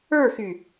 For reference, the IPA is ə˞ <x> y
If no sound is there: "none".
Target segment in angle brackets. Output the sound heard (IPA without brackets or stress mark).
x